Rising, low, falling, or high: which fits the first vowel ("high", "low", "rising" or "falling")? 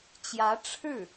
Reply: rising